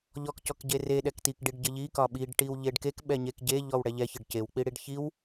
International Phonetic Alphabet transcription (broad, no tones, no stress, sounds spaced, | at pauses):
ʎ ɔ k c ɔ k ɟ e r e ɗ ɛ k t i k ɖ i ɖ ɟ ɘ ʎ i k ɒ ɓ i ɖ ʈ i w ʎ e ɖ k e k ɓ ɛ ɲ e k ɟ e ʎ ɔ w ɽ ɛ ʎ ɛ ç ɘ ɖ c e w k͡p i ɽ i ɖ ç i w